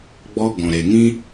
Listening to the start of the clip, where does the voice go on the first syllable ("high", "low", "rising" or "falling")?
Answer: high